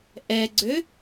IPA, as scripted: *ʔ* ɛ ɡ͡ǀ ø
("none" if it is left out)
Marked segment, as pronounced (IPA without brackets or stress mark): ʔ